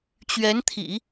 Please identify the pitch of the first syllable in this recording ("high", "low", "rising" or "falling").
rising